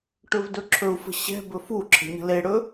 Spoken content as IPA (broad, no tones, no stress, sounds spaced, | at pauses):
ʈ ɵ v d ɵ ǁʰ ɵ u̯ f ə̤ ɕ ɛ̤ b ɵ f u ǁʰ ə̤ ɲ ə̤ l e ɽ ɵ